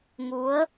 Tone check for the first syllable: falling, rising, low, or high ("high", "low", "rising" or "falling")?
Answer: rising